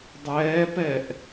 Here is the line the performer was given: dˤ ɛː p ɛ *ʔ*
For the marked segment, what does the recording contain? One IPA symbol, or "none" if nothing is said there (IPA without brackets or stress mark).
ʔ